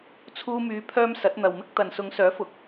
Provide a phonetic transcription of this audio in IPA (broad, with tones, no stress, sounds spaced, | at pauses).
t͡sʰ uː˧ m yː˨˧ pʰ œː˧ m s ɐ˨˥ t̚ n̪ ɐ˨ w m ɪ˥ k̚ t̪ ɐ˨ n s ʊ˨˧ ŋ s œː˨˥ f ʊ˨ k̚